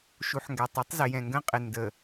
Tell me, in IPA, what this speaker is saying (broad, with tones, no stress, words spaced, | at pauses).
ʃu˨ħŋɡæ˨tˤi˦tˤ zɪ˨jɛ̃˨ŋɡə̃˦qʼɪ˨ ndə˨